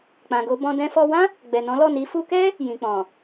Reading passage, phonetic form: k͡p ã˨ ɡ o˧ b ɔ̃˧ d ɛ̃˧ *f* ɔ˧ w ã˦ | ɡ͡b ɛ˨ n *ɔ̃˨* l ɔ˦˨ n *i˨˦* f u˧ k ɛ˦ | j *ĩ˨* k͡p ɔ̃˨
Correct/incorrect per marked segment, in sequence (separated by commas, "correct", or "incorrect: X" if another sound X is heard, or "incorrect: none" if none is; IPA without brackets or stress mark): correct, incorrect: ɔ̃˨˦, correct, correct